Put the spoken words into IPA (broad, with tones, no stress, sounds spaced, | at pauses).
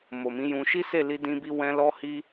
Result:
m o˨ m ĩ˨˦ j ũ˧ ʃ i˦ s e˦˨ l i˧ d ĩ˧ b i˧ w ɛ̃˧ l ɔ˧ h i˧